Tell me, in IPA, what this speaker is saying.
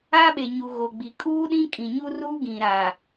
a˦ ɓ e˨ ɲ u˨ ɣ o˨ ɡ͡b i˨ kʼ uː˦ ɗ ĩ˦ kʼ ĩ˨ ɲ u˦ r uː˦ ɡ ĩ˨ ɾ aː˨

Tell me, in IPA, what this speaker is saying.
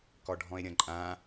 k ɔ ɖʱ ɔ̃ e̯ ɾʲ ɐ̃ ǃʼ ã

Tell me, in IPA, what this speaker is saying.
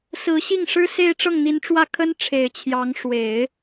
s ɹ̩˧˥ ɕ i˥˩ ŋ ʂ ɻ̩˥ s e˥˧ ɪ̯ ʈ͡ʂ ɤ˥˩ ŋ n̪ i˧˥ n ʈ͡ʂ w ä˥˩ kʰ ə˥ n ʈ͡ʂʰ e˨˩ ɪ̯ t͡ɕʰ j ɑ˧˥ ŋ ʂ w e˨˩˦ ɪ̯

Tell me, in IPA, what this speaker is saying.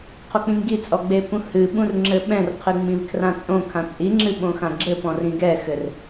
qʰ o k͡p ĩ ŋ ɡ i t͡sʼ ɔ ɡ͡b e p ũ h ɨ ɓ ũ r ŋ͡ǁ ɘ ɓ ɛ̃ r qʰ ɨ ŋ͡m ĩ v kʰ r ã t͡sʼ õ kʰ ã t͡sʼ i ŋ͡ǁ ɨ ɓ õ x ã ɡ͡ǁ ɘ p ɔ̃ r ĩ ɡ ɛ x ɘ r

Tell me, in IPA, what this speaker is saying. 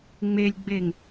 ŋ͡m e lʲ ɡ͡b e ŋ

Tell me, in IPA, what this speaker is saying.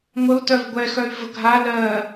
ŋʷ ə u̯ t œ v ɡʷ ɛ x œ y̯ v ə ɡʱ a l ɜ

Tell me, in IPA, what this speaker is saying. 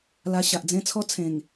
l a˧ ɕ a˨ ʔ d͡z ẽ˦ t͡sʰ ɔ˦ t͡sʰ ẽ˨˩ ŋ

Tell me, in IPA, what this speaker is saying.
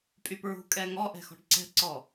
pʼ y p ɹ ṳ kʼ ɛ ŋ ɔ ʔ ɛ̤ x ɔ̤ ɖ ǀ ɛ̤ ǀ ɔ

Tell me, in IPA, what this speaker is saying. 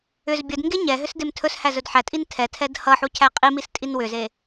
ʏ z bʲ ə d ŋ ɡ e ɲ ɛ ɦ ʏ s d e m tʰ ɵ s h æ z ɵ d ħ æ tʼ i n tʰ ɛ tʰ ɛ d h ʌ ħ u cʰ æ qʼ i m i s tʼ i n w ʏ z e

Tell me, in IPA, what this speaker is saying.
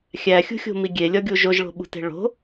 xʲ æ xʲ ṳ xʲ o̤ m i ɡʲ e lʲ ɒ ɡʲ u ʒ o ʒ ɭ o̤ ɓ ṳ t e̤ ɭ o̤

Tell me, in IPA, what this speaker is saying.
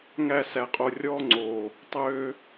ŋ æ˧ s æ˨ qʼ o˨ rʲ ɔː˧ ŋ͡ǀ oː˨ | tˤ øː˧

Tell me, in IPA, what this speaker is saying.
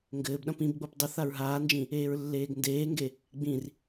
ŋ ɡ ɘː b ɗ ɐ̃ p ĩ b ɡ͡b o p dˤ ɘ θ a ɹ ɦ aː n d͡ʒ ĩ | eː ɹ lː eː ɡ n d eː ŋ ɡ e | ɡ͡b ĩ r

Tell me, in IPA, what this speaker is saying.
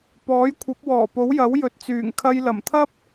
p ɔː˨˥ j kʷʰ ɐ˨˥ p̚ w ɔː˨˩ p o˨˥ w j ɐ˨˥ w j ɵ˨ t̚ t͡s yː˨˩ ŋ kʰ ɐ˧ j l ɐ˨˩ m t̪ʰ ɐ˥ p̚

